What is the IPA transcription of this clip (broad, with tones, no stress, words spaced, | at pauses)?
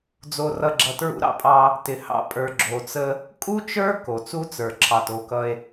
d͡zo˨rʌ˨ɡ͡ǁʌ˨ tɹṵ˦ɾɑ̰˦pʼɑ˦ | tɪ˨hɑ̰˦ pʼə˞˨ɡ͡ǁo˨t͡sə˦ | kʼu˦t͡ʃə˞˦ ko˨t͡su˦t͡sə˞˨ ǁʰɑ˨to˨˦kʌ˦e̯